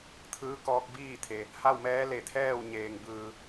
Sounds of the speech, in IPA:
t̪ʰɯː˧˥kɔː˧k̚biː˥˨t̪ʰe˩ | ha˥˨wmɛː˧˥ le˧˩t̪ʰɛː˥˨w ɲeː˩ŋbɯː˩

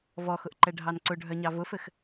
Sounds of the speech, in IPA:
vɔxʊʔǃɛɖʱɑn ǀʊɖʱœɲɑ vʊfɘx

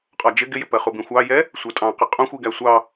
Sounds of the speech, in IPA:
qʼɒd͡ʒɪ ɡɪjɪpɜχu bĩxʷɑjɛ | sʷɜtʼɑ̃qɪ qʼũxʷiɡæ sʷɑ

